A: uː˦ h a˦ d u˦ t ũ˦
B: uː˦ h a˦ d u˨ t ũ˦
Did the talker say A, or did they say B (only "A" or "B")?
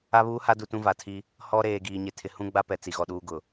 B